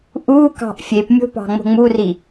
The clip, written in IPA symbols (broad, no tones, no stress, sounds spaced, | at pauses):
ʔ u k ɑ̤ ʔ fʲ e p mʲ o̤ p ɑ̤ ŋ͡m o̤ ŋ͡m u r i